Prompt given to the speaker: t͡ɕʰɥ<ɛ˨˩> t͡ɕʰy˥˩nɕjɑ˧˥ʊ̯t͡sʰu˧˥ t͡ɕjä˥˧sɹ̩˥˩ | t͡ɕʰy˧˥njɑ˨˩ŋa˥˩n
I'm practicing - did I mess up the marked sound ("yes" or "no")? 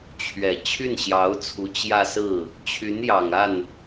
no